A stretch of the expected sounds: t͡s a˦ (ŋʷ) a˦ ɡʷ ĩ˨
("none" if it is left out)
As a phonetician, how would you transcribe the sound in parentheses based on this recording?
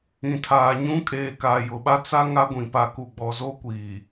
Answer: ŋ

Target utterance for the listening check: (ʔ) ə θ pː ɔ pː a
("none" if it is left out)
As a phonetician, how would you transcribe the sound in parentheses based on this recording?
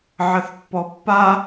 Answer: ʕ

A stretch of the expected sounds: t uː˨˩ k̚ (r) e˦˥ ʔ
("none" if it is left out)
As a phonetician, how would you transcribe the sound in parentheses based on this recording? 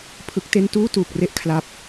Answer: r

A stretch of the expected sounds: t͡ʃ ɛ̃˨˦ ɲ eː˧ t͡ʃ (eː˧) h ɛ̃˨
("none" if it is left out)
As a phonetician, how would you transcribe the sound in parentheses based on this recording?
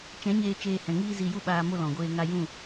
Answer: eː˧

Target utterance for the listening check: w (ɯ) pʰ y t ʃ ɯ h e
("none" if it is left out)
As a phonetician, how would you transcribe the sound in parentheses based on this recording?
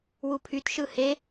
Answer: u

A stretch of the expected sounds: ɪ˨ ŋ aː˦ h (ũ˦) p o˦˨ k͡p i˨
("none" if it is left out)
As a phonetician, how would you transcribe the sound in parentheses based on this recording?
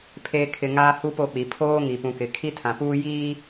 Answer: u˦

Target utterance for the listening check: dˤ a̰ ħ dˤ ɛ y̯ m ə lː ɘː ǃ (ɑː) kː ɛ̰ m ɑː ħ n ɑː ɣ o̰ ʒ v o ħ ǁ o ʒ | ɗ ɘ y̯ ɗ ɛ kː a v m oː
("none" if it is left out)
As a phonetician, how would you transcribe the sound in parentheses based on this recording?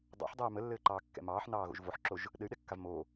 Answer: ɑː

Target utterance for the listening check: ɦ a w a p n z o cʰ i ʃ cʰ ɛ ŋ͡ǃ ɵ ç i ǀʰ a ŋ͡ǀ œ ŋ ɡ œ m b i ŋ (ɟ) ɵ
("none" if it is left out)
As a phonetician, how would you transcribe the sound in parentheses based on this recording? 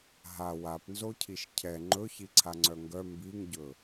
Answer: ɟ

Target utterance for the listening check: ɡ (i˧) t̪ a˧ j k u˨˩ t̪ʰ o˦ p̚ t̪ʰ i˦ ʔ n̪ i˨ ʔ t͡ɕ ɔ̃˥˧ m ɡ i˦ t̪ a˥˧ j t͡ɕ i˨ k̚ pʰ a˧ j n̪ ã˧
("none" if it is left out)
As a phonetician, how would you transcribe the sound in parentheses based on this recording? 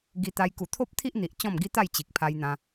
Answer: i˧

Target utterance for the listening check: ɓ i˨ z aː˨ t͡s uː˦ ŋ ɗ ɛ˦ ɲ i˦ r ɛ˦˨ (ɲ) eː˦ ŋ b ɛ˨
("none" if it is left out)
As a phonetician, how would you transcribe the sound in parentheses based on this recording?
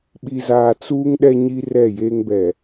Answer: j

